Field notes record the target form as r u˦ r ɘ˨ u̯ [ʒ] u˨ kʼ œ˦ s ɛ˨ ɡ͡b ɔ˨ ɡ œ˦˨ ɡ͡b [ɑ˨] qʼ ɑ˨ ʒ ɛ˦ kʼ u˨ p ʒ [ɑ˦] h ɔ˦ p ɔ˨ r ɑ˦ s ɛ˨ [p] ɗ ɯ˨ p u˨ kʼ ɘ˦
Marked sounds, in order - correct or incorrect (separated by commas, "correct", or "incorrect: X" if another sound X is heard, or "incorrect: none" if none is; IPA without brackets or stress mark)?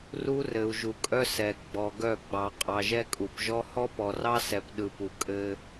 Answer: correct, correct, incorrect: ɔ˦, correct